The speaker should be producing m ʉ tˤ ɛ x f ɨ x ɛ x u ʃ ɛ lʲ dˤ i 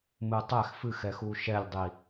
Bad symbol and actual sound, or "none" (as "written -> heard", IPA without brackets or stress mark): ʉ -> ɨ